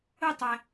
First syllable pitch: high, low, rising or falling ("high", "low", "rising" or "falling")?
falling